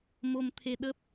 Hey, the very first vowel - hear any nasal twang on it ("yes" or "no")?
no